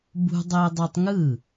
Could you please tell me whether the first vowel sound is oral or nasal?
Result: oral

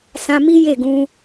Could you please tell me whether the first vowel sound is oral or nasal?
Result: nasal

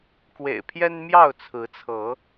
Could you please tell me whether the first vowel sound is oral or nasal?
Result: oral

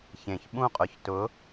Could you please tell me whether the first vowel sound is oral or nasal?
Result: nasal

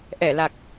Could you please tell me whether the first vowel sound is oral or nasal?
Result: oral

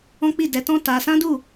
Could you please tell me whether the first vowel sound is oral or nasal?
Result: nasal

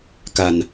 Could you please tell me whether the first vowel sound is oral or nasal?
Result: oral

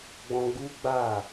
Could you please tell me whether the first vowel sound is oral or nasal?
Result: nasal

